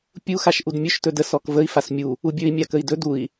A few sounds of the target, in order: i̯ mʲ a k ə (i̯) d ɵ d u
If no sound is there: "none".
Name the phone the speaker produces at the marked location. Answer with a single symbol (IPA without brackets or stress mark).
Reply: i̯